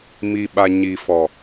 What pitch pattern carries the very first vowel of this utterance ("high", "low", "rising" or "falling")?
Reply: low